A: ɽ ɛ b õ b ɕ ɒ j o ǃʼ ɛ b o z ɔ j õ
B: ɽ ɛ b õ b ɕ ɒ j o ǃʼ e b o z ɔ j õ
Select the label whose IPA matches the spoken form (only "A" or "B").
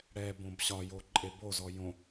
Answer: B